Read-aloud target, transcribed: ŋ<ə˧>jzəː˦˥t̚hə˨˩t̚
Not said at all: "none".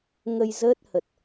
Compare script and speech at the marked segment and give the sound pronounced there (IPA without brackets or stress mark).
ə˧